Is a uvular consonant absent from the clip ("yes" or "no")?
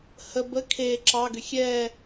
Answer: yes